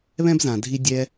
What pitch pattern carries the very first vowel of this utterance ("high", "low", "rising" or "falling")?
high